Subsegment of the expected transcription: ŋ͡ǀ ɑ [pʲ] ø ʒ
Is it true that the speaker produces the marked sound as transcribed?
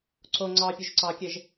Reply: yes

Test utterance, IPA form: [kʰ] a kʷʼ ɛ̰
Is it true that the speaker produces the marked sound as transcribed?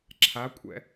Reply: no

